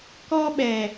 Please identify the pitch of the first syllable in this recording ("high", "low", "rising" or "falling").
high